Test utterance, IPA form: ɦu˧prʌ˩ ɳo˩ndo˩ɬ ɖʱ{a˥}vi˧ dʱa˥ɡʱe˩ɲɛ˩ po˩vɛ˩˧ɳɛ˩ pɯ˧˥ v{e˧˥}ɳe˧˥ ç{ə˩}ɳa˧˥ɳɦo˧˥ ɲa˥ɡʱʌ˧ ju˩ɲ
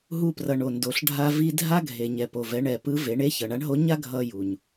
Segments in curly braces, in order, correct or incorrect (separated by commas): incorrect, incorrect, incorrect